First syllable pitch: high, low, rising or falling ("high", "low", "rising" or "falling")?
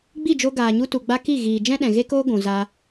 falling